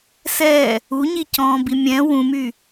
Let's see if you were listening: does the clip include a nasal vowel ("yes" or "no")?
yes